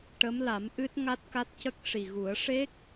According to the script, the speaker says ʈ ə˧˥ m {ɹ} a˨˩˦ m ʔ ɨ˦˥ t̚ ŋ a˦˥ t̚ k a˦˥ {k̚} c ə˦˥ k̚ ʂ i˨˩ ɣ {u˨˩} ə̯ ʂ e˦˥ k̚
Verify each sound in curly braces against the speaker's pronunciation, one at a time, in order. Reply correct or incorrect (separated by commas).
incorrect, incorrect, incorrect